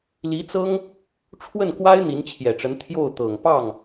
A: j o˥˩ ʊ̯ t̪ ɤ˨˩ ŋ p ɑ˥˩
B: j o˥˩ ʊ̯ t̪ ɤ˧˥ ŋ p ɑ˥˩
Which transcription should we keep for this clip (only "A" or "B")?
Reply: A